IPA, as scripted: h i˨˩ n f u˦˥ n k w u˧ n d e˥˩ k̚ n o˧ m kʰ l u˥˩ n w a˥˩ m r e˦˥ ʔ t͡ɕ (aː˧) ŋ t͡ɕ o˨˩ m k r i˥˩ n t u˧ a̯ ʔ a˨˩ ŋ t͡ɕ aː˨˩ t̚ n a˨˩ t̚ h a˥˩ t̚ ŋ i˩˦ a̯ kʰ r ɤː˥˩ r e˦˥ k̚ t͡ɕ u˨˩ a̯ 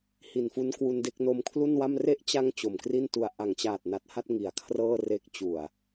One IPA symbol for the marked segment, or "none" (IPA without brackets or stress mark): a˧